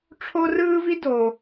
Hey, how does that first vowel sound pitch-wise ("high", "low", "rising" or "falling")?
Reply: high